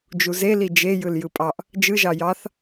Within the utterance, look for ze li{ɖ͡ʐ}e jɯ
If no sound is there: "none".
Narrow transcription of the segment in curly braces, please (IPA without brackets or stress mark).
d͡ʒ